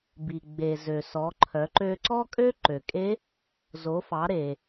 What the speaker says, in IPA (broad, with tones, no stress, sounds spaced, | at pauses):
b i˩ ɡ͡b e˩ z ø˩ s ɔ˩˧ ǃʰ œ˩˧ ǃ ø˧ ǀ ɔ˥ kʼ ø˥ ǃ ø˩ kʼ e˧˥ | z o˩˧ f ɑ˩˧ ɾ e˩